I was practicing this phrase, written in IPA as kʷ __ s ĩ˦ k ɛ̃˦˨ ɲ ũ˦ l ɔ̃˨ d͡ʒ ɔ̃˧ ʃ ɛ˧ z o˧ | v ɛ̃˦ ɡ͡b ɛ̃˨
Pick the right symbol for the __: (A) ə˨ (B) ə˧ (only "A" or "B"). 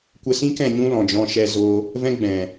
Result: B